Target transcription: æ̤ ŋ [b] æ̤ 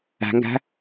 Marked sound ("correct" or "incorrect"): incorrect